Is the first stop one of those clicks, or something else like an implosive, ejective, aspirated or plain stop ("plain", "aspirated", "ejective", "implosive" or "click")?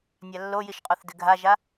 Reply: ejective